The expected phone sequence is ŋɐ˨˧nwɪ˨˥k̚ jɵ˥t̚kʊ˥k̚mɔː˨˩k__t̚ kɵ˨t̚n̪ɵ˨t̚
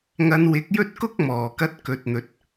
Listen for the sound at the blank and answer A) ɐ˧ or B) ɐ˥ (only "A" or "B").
A